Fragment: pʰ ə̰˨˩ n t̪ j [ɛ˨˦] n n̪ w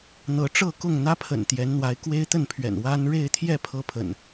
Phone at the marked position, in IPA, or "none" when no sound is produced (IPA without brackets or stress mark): ɛ˨˦